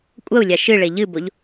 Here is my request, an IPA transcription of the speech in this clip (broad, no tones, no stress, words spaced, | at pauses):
kʷʼɐu̯lʲa ʃɨɭe ʎɨboʎ